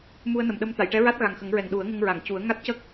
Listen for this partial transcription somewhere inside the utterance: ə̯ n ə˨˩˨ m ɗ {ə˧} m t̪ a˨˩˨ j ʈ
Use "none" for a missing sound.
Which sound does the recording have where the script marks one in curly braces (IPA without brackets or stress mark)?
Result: ə˧